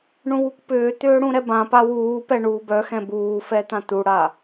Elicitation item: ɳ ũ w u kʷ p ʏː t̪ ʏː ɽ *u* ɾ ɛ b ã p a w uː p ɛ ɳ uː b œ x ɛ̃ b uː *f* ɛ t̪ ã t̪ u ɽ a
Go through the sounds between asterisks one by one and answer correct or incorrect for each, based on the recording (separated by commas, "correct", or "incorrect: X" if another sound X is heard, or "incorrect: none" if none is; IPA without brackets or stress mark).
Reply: incorrect: ũ, correct